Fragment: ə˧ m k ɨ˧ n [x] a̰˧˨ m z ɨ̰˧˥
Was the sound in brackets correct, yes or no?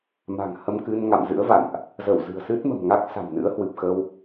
no